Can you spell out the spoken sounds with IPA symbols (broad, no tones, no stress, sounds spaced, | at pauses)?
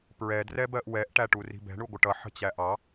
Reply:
p ɹ ɛ d r ɛ b ɜ ʔ w ɛ ʔ ʈ æ ʈ u r i̤ b ɛ̤ ɳ u ɡʷ ə ʈ ʌ ħ ə̤ t͡ɕ æ ʔ ɑ